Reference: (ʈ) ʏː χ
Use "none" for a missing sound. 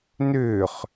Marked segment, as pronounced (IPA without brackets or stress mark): n